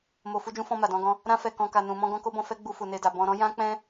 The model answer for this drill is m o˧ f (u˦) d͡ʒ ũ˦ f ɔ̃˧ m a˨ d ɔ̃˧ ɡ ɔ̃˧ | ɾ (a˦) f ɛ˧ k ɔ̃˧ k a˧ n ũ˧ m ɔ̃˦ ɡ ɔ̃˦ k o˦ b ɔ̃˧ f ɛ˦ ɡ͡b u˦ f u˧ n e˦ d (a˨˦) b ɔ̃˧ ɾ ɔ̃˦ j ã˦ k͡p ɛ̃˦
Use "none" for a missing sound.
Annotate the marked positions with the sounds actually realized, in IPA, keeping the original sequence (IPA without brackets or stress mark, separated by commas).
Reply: u˦, ã˦, a˧